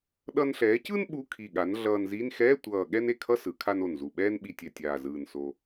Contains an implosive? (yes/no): yes